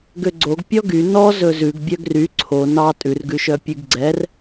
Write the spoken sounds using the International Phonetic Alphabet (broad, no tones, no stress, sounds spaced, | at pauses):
ɡ ø ɡ͡ǀ o ɡ pʲ ɔ ɡ y n ɔ z ɵ z ʉ ɡ bʲ œ ɡ r y ǀʰ o n ɑ tʼ ʉ r ɡ ʉ ʃ œ pʲ ʉ ɡ ɡ͡ǀ ɛ r